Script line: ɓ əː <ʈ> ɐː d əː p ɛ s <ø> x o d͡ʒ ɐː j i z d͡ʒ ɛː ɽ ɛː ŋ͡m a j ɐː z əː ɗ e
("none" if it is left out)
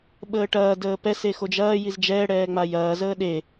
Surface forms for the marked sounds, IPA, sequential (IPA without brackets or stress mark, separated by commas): ʈ, e